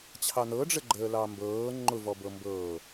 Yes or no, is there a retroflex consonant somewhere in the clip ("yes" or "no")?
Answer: yes